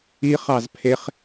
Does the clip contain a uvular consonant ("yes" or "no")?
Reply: yes